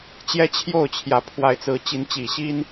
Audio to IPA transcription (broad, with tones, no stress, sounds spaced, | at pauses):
t͡ɕ j ɛ˦ t͡ɕʰ j o˥˨ ʊ̯ t͡ɕʰ j ä˨˦ pʰ w a˨˦ ɪ̯ t͡s ɹ̩˨˦ t͡ɕ i˨˦ n t͡ɕ i˨˩ ɕ i˦ n